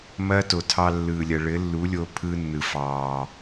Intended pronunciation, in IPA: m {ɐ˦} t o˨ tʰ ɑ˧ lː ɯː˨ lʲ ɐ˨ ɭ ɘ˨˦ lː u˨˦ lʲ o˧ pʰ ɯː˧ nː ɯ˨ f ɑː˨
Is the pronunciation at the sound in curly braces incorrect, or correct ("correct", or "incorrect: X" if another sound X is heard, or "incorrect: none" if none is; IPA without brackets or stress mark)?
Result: incorrect: ɐː˦